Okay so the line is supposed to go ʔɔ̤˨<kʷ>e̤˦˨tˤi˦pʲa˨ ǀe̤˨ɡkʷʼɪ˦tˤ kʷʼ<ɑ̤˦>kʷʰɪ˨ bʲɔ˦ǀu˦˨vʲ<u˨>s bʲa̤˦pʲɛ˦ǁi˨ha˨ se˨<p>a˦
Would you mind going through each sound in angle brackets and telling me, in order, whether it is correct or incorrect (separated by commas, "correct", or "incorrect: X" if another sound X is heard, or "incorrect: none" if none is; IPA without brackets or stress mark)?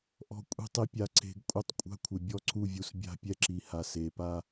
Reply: incorrect: kʷʼ, incorrect: a̤˦, correct, correct